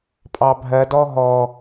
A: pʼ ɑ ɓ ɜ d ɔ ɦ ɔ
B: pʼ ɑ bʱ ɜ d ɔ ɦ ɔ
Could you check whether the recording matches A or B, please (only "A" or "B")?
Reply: B